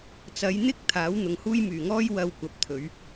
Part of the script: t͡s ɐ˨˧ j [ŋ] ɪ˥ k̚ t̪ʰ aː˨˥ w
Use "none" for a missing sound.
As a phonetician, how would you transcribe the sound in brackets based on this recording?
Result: n̪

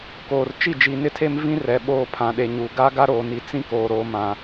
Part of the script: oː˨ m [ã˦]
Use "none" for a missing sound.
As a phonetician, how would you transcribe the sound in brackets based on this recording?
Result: ã˨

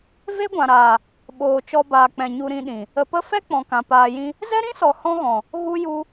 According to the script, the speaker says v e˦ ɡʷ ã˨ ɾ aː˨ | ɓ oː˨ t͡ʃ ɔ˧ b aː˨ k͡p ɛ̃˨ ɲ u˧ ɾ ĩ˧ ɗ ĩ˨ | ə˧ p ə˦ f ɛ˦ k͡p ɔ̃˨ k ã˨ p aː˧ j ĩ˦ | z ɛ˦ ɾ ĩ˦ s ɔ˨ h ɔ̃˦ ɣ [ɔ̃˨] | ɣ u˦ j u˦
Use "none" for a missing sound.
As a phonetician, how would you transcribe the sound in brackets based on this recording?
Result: ɔ̃˨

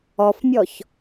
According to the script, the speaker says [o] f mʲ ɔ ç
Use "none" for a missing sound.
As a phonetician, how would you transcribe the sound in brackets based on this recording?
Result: ɔ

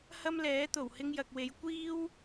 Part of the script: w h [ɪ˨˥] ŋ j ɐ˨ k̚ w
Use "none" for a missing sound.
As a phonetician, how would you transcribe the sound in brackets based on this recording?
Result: ɪ˧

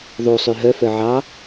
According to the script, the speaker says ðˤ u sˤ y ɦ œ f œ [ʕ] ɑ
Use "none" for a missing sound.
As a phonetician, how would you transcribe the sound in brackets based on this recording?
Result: ʕ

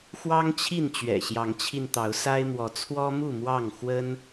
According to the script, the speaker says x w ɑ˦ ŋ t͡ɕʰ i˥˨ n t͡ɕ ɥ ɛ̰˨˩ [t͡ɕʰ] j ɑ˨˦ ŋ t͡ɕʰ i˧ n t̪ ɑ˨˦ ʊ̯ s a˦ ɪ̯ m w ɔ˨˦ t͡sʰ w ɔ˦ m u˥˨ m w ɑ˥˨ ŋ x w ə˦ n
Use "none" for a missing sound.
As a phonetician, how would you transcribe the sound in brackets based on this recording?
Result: ɕ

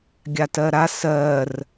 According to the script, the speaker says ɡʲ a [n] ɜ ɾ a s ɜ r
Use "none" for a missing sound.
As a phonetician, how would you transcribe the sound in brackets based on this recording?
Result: t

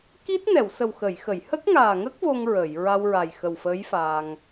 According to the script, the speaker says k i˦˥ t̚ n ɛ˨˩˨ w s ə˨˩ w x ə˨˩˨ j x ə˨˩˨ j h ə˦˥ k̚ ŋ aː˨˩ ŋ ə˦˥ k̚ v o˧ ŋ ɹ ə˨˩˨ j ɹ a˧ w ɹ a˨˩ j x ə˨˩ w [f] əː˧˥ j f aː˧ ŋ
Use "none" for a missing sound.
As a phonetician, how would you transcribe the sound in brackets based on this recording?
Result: f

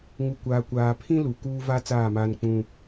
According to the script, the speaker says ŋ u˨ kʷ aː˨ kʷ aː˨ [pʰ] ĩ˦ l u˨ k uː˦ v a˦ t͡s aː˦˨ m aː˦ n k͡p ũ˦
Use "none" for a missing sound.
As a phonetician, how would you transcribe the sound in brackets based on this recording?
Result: pʰ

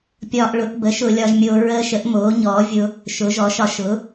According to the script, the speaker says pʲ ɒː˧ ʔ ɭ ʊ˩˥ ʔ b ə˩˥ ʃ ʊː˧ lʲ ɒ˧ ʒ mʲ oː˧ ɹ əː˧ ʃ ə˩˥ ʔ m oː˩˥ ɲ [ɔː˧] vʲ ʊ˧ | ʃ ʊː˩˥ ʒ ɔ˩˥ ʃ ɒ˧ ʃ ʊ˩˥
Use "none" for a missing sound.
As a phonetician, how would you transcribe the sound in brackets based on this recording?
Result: ɔː˩˥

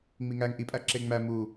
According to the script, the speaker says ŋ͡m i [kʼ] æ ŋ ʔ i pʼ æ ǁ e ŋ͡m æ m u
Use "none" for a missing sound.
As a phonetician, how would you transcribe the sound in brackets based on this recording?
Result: ŋ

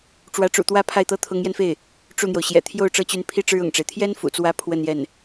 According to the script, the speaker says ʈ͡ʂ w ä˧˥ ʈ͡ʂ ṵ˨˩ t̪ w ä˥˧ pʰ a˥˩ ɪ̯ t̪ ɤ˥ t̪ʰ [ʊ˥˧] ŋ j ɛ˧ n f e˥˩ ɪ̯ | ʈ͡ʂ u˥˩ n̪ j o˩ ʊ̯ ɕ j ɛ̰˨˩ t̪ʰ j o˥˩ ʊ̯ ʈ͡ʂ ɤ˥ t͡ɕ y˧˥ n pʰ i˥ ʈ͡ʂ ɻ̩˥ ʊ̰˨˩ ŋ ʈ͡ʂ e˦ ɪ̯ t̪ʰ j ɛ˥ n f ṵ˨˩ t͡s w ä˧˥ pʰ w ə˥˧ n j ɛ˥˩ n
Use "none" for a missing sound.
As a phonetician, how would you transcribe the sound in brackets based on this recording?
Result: ʊ˧˥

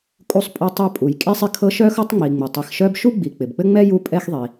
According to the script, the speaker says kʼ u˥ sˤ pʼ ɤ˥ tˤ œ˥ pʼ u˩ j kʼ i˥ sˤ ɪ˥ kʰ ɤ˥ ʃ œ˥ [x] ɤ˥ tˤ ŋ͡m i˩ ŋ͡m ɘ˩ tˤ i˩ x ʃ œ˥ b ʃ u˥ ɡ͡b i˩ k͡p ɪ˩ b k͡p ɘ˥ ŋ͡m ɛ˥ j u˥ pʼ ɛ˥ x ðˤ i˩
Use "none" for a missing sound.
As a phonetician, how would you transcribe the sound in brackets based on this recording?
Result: x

